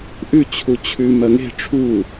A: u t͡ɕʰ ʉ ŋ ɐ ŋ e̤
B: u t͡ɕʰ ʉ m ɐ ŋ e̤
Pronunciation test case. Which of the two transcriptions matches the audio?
B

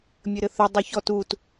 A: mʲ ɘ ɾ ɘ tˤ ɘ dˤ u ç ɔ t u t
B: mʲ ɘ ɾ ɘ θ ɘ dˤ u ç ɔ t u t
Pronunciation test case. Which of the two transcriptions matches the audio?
B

